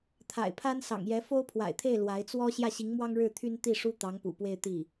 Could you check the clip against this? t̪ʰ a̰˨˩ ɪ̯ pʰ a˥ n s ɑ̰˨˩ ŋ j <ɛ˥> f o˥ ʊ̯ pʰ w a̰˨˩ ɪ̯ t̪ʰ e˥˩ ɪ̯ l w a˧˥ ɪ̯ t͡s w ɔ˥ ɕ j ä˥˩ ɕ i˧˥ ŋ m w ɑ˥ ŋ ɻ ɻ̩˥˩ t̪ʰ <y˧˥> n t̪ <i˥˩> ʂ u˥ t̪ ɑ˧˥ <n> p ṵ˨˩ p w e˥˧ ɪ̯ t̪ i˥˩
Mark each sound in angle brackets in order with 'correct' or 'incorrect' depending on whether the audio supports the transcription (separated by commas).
incorrect, incorrect, correct, incorrect